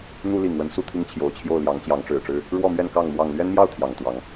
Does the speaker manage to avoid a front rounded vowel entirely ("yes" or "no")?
yes